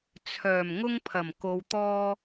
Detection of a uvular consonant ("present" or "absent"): absent